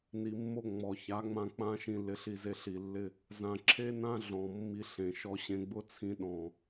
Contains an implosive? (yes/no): yes